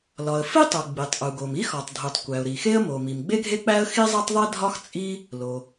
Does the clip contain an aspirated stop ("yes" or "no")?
no